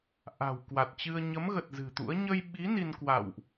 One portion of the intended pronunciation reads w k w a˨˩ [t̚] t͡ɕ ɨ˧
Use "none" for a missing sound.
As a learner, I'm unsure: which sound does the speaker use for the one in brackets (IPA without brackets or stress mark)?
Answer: t̚